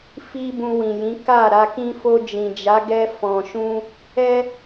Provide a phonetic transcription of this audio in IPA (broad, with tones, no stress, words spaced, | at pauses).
fi˦bũ˧wĩ˨jĩ˨˦ ka˦˨ ɾa˧kĩ˦ fo˧d͡ʒĩ˨d͡ʒa˨˦ɡɛ˧ fɔ̃˨ʃũ˧ | ɛ˦